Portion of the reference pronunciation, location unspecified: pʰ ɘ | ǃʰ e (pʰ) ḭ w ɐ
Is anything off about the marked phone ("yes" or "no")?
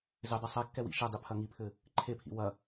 no